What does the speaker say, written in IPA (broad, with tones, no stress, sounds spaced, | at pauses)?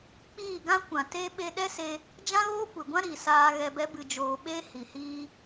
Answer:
k͡p iː˦˨ ɡ ã˦ kʷ ã˨ t e˦ ɓ e˧ ɗ ɛ˦ s e˧ | d͡ʒ ã˦ ɣ oː˦ kʷ e˨ ɡʷ ã˦ ɾ i˨ s aː˧ ɣ ɛ˧ b ɛ˦ b ɨ˧ d͡ʒ oː˧ ɓ e˦ h i˨ h iː˧